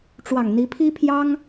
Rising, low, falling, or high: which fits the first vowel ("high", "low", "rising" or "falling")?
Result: low